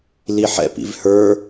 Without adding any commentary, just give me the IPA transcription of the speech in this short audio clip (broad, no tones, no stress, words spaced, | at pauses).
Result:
liħɛ̰ pḭvhə˞